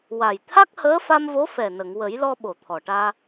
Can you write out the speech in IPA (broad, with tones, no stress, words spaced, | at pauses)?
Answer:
wa˨˩j t̪ʰa˦˥k̚həː˧˥ fa˧mvo˧˥fɛ˨˩nə˨˩˨ŋ wə˨˩˦jlɔ˧ ɓo˨˩˨ t̪ʰɔ˨˩ʈaː˧